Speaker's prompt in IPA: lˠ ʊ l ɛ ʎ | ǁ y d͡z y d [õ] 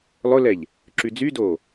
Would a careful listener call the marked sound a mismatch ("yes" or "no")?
yes